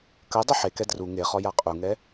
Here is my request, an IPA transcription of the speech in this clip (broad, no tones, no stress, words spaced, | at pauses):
kɐ dˤɐħekɛ dru ŋeχɔ jaqʼuŋɛ